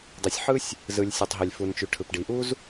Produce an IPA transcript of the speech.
dˤ i˩ sʲ ħ ɯ˥ sʲ | z ɯ˩ lʲ sʲ u˩ tˤ ɦ e˩ lʲ f u˩ n t͡ʃ y˩ ʈʰ ɯ˩ p ɖ i˩ ʔ u˥ z

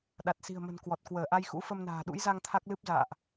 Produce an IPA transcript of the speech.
ɗ a˨˩ t̚ s i̤˨˩ ə̯ m ə̤˨˩ n k w ɔ˨˩ t̚ k w əː˧˩ ʔ a˧ j x ṵ˧˥ f ə˧ m n a̤ː˨˩ ɗ ṵ˧˥ j z a˧ ŋ t̪ʰ a˦˥ k̚ l ɨ˦˥ p̚ z a̰ː˧˨ ʔ

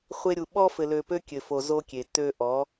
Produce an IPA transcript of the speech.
χʷ e˧ ɾʲ u˨ ɓ ɔ˧ f ɘ˨ l ø˨ p ø˦ kʲ ɘ˨ f o˨ z o˧ kʲ e˨ t ø˧ ʔ ɔ˨˦

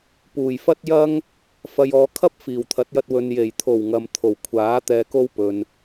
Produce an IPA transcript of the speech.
p uː˨˩ j f ɐ˥ t̚ j ɐ˥ ŋ | f ɐ˨ j ɔː˨˧ kʰ ɐ˥ p̚ f iː˨˩ w t̪ʰ ɐ˨˥ t̚ j ɐ˧ t̚ w ɵ˨ n j e˨˩ j t̪ʰ o˨˩ w ŋ ɐ˨ m t̪ʰ o˨˩ w kʷʰ aː˨˥ t̪ ɛː˧ k o˥ w p ɵ˨ n

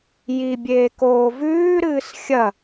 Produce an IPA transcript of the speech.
j i bʲ eː k oː v ʉː ɾ ɨː s xʲ ɐ

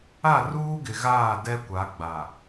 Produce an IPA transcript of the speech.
a˦˨ r uː˦ ɡ ɪ˨ ɣ aː˦˨ d ɛ˦ kʷ a˨˦ ɡ͡b a˨

